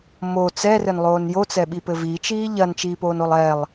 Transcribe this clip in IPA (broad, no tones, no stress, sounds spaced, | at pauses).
m o t͡s ɛ r ɘ n lˠ oː n j o t͡s ɛ ɓ i p ɘ v i t͡ʃ iː ʎ ɐ n t͡ʃ iː p oː n o lˠ ɛ lˠ